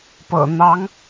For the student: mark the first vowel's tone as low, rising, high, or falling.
low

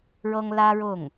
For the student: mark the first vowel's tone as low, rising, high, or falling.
high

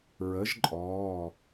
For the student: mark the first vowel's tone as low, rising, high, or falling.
rising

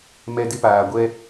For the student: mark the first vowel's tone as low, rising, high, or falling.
high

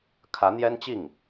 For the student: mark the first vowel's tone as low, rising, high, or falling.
rising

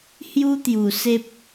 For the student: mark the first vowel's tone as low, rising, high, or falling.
high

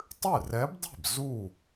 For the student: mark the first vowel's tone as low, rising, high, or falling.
falling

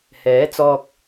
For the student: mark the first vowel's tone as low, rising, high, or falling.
rising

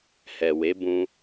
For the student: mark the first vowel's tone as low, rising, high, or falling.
low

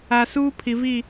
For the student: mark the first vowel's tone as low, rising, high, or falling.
low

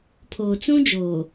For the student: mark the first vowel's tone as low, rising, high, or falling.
low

